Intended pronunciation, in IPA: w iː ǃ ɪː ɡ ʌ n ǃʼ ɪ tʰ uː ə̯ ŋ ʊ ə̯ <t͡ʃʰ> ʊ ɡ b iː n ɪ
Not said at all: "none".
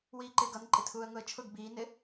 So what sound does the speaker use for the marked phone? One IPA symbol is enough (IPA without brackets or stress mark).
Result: t͡ʃʰ